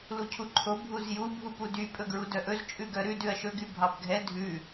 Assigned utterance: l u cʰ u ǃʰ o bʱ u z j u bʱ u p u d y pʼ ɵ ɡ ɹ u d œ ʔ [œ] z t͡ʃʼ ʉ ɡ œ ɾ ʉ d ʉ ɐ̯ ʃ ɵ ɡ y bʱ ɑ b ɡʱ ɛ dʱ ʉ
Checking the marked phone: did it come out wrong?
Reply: yes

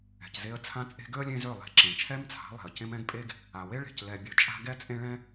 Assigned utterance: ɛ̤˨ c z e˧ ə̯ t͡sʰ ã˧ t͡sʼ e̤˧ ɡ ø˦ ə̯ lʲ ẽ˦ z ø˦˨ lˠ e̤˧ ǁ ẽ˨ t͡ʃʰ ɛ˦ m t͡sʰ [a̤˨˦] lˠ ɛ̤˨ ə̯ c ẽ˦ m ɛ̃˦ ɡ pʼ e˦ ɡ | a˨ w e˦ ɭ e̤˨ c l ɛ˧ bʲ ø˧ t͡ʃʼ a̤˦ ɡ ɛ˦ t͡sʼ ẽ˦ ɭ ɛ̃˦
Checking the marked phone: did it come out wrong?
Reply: no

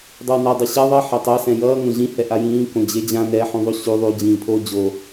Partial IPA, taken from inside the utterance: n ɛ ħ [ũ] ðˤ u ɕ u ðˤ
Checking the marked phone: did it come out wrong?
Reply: no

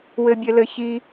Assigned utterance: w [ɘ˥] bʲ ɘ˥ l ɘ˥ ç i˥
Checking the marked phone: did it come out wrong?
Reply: no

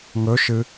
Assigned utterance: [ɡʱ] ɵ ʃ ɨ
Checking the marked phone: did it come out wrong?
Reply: yes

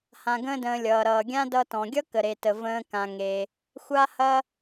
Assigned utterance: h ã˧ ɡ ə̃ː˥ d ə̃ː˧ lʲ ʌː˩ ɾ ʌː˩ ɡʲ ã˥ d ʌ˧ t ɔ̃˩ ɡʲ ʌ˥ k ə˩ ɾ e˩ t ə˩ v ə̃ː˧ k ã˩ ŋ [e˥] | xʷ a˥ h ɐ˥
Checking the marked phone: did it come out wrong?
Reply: yes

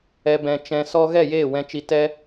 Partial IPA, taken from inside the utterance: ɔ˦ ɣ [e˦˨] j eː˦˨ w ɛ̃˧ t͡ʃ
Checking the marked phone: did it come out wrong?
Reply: yes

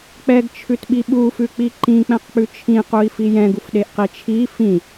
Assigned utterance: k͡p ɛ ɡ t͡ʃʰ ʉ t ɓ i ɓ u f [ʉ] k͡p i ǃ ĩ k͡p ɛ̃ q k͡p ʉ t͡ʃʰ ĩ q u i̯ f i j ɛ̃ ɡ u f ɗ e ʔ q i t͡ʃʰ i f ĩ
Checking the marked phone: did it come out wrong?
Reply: no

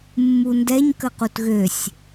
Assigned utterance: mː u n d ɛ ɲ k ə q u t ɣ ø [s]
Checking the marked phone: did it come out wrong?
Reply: yes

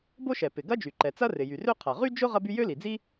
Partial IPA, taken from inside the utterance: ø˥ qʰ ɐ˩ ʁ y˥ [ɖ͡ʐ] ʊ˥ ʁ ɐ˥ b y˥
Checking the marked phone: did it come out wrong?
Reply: yes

